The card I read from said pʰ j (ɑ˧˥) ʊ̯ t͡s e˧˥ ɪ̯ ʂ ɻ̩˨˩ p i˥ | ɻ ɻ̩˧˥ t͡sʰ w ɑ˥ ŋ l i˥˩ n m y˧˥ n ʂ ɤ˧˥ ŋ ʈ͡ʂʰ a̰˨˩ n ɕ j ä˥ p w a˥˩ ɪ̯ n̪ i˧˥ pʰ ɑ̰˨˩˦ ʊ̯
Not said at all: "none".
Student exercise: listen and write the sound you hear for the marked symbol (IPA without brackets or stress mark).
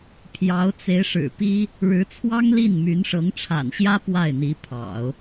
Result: ɑ˧˥